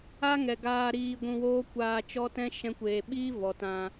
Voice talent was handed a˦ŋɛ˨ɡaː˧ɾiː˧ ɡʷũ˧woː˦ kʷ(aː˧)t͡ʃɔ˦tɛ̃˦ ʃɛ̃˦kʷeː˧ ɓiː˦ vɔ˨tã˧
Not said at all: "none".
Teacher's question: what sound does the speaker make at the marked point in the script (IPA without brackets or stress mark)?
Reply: aː˧